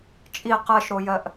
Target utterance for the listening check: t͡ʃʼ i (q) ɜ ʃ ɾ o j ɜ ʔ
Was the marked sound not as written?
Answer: no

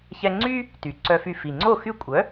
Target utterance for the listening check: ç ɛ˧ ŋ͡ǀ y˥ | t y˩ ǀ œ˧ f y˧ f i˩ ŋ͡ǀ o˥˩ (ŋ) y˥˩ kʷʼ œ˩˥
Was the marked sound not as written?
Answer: yes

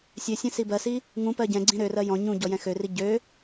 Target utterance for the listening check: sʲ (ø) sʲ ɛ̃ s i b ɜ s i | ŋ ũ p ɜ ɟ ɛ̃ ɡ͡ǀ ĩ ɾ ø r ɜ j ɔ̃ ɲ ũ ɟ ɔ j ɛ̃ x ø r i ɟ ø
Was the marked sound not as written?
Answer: no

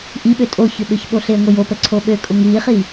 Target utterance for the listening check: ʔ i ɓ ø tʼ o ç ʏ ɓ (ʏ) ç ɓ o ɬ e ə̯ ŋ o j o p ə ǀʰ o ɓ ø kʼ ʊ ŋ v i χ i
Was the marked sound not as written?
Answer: no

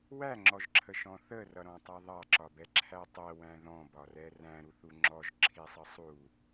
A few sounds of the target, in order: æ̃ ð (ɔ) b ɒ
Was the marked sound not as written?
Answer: yes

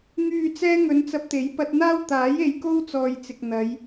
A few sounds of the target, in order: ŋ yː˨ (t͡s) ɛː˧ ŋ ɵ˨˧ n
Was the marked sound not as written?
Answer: no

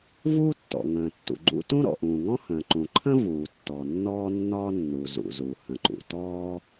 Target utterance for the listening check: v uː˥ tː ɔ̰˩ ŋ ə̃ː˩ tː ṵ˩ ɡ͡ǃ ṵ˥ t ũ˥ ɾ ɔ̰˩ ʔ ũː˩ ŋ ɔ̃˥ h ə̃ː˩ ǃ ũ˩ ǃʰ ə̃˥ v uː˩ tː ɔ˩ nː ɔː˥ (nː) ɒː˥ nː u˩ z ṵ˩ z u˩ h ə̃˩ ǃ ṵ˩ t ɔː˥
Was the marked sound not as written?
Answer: no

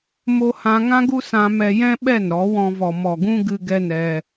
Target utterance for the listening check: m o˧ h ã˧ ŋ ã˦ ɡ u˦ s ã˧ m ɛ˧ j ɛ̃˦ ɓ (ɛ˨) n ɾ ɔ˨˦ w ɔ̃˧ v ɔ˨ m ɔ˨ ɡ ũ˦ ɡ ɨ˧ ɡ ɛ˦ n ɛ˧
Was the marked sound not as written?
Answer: yes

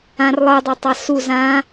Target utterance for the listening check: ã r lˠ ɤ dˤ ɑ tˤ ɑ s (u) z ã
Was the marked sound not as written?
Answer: no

